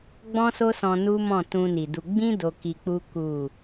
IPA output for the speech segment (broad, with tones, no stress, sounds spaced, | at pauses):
ɡ͡b ɔ̃˦ s o˦ s ɔ̃˧ n u˦ m ɔ̃˦˨ t ũ˧ n i˨ d u˧ ɡ͡b ĩ˦ d o˧ k i˧ k͡p u˦ k u˦˨